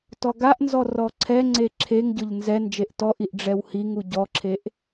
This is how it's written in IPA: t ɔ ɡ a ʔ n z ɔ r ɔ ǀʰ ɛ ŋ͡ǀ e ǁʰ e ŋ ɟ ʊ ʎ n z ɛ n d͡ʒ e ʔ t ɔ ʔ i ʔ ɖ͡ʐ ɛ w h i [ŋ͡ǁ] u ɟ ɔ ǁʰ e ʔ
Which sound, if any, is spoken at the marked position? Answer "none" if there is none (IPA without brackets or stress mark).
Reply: ŋ